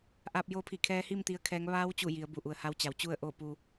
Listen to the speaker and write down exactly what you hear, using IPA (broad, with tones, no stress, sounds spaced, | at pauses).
ʔ aː˧ p̚ j oː˧˥ pʰ i˧˩ kʰ ɛː˧˥ h i˥˨ m t̪ i˧˥ ə̯ kʰ ɛː˧˥ ŋ ʋ aː˧˥ w t͡ɕ u˧˩ j i˩˧ ə̯ b u˩ ʔ u˩ ə̯ h a˧˥ w t͡ɕ a˩˧ w t͡ɕ u˥˨ ə̯ ʔ oː˥˨ p uː˧